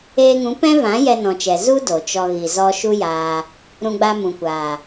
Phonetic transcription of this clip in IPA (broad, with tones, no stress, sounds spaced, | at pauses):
eː˧ ŋ ũ˨˦ p ɛ̃˦ v ã˨˦ j ɛ˧ n ɔ̃˨ t͡ʃ ɛ˨ z u˦ d o˨ t͡ʃ ɔ˧ ɣ i˨ z ɔ˧ ʃ u˦ j aː˧ | ɾ ũ˧ ɡ͡b a˧ m ũ˨ kʷ aː˨